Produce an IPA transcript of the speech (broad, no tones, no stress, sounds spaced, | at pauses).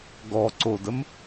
ɡ ɔ ǀ o d ə m